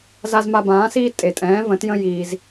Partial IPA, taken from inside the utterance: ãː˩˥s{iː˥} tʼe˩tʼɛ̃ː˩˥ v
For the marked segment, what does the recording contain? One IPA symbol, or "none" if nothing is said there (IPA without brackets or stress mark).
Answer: iː˥